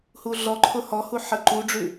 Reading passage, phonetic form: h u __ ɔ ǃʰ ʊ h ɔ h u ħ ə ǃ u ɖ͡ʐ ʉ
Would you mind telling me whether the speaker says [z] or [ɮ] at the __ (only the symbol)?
ɮ